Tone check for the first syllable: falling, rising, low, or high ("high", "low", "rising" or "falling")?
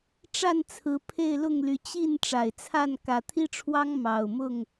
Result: falling